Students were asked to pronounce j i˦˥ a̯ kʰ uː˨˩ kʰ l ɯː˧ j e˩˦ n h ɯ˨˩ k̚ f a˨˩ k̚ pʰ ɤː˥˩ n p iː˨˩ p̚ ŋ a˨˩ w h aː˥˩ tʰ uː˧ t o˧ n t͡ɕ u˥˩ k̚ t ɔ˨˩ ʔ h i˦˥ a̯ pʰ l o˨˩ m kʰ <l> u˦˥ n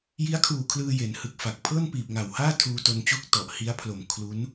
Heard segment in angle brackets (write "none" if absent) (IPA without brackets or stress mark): l